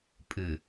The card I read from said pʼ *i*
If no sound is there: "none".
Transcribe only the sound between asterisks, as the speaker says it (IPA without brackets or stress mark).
ɨ